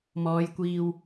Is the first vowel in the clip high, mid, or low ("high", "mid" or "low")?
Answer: mid